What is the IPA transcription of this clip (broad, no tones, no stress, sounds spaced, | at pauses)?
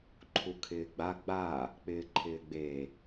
ǃʰ u kʰ ɪː ɡ͡b a ɡ͡b a | k͡p ɪː ǃʰ ɪː ɡ͡b e